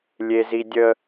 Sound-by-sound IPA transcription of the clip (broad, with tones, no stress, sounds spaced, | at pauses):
lʲ e˦ z i˦ dʲ ə˦